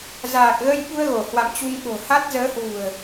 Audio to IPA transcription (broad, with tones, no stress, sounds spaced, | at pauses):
z aː˨˩ k̚ ɣ ə˧ j ɓ u˧ ə̯ ɣ o˧˩ h w a̰˧˨ m t͡ɕ u˧ ŋ ɓ o̤˨˩ h a˦˥ t̚ z əː˨˦ h w ṳ˨˩ ə̯